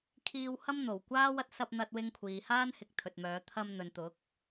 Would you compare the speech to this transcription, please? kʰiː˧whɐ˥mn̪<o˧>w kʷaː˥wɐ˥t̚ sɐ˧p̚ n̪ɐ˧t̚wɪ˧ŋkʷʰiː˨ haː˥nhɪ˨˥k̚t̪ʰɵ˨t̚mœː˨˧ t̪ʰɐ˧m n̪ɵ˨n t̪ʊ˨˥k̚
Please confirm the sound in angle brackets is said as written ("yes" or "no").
no